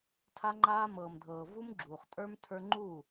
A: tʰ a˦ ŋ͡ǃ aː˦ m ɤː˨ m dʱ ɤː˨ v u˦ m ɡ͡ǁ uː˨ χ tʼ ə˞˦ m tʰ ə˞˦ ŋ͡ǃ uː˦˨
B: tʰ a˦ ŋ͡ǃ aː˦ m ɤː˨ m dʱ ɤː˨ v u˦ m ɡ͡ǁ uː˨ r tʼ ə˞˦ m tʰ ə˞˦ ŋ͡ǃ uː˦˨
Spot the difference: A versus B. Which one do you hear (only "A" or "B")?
A